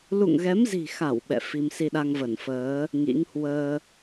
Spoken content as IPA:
l ṵ˧˨ ŋ ɣ ɛ˨˦ m z i̤˨˩ x a˧˩ w ɓ ɛ̰˧˨ f i˧ m s i˧ ɗ a˧ ŋ v ə˧˩ n f əː˨˦ | ŋ ḭ˧˥ ŋ h w əː˧

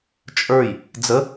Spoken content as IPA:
t͡ʃʼ ə˞ j | d͡z ə

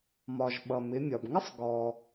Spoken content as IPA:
m ɒ˩ ʒ ɓ ʌ˩ m ɪ˩˧ mʲ ɒ˩ b ŋ ɪ˥ sˤ ɡ ɔ˩

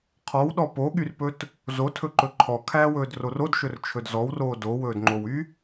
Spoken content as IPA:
qʰ ɔ w ɗ ɔ p o ɠ y r p ɵ t | z o tʰ ɵ ǃ ɵ ǃʰ ɔ kʰ æː w ɵː d r o r o d ʃ ɵ r t͡ʃʰ ɵ d z ɔ w r oː d o w ɵː d ŋ͡ǃ o w y

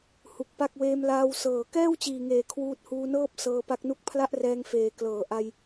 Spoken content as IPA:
h u˨˩ k̚ p a˥˩ k̚ w eː˧ m l aː˧ w s ɤː˨˩ k ɛː˥˩ w t͡ɕ iː˨˩ ŋ eː˩˦ kʰ w uː˦˥ t̚ h uː˧ n ɤː˥˩ p̚ s ɤː˧ p a˦˥ k̚ n u˥˩ k̚ pʰ l a˥˩ ʔ r ɛː˧ ŋ f eː˨˩ k l ɤː˩˦ ʔ a˧ j

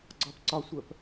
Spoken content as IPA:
ɡ͡ǀ ɒ p ǀ ɒ sʷ ɜ p

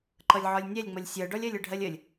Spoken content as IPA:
ǃ ʌ lʲ ʕ ɒ lʲ nʲ ɛ lʲ ŋ͡m ʌ lʲ sʲ ɜ ɖ ɒ lʲ ɜ lʲ ə ɖʱ ɜ lʲ ə lʲ

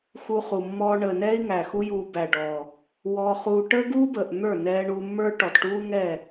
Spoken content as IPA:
x u˧ χ u˨ mː ɔː˧ ɳ əː˨ n ɛː˦ i̯ ŋ æ˨ x u˦ j uː˧ b æ˨ ɖ ɔː˨ | w ɔ˧ χ uː˧ ʈ əː˦ ɡ uː˦ b əː˨ ʔ n̪ ə˞˦˨ n ɛː˧ ɳ uː˧ mː ə˞˦ ʈ ɔ˨ t ʈ uː˦ ŋ ɛ˦˨

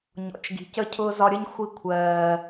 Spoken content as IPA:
ɲ ɔ̰˨ t͡ʃ ɡ i̤˨ c ə˦ cʰ ʊː˦ z ɒ˧ ɾʲ ə˦ ɲ xʷ i˧ kʷʰ ɜː˨

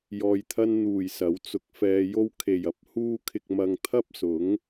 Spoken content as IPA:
j ɔː˨ j t̪ʰ ɐ˧ n n̪ uː˨˩ j s ɐ˨˥ w t͡s ʊ˧ k̚ f ɛː˧ j o˥ w kʰ e˨˩ j ɐ˨ p̚ h uː˥ kʰ ɪ˧ k̚ m ɐ˧ ŋ t̪ʰ ɐ˥ p̚ s ʊ˨˥ ŋ

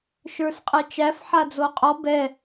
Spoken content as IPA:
ʃ ə˞ s qʼ ɛ t͡ʃ æ f ħ a d͡z o qʼ ɔ b ɛ

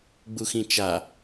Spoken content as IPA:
ɡ͡b u x ĩ t͡ʃ a

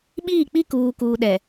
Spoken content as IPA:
ɓ iː˦˨ k͡p i˦ k uː˨ k uː˨ ɗ ɛ˨

